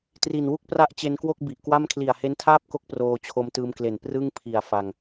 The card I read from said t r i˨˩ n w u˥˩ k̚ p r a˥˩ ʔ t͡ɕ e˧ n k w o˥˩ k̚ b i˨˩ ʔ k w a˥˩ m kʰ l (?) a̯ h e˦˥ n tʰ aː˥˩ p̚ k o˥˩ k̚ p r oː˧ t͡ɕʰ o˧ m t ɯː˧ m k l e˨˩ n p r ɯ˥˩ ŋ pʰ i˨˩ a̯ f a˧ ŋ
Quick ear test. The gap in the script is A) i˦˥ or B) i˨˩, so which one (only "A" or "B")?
B